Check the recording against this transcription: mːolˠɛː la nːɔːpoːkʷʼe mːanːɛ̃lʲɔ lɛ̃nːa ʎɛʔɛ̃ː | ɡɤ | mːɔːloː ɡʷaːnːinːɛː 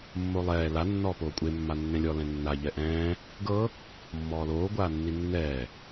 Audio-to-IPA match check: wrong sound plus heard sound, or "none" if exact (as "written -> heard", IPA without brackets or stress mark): none